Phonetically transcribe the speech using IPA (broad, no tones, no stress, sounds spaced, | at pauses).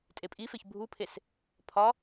tʼ e pʼ i f e ç bʱ u pʰ e s | pʰ ɒ